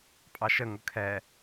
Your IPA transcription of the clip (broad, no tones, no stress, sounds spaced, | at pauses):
pʼ ɑ ʃ ə ŋ ʊ kʰ ɛ